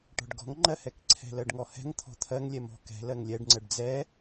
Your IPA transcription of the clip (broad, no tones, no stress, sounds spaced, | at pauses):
ʈ ɔ̤ ɖ ɡ ɔ̤ ŋ ŋ͡ǃ ɜ h ɛ k ǀʰ ɛ̤ l ɜ ɖ ŋ ɔ h ɛ̤ ŋ t̪ʰ ɔ̤ t̪ʰ ɜ ŋ lʲ ɛ m ɔ̤ k ɛ̤ l ɜ ŋ lʲ ɛ ɖ ŋ͡ǀ ɜ ɖ d͡z ɛ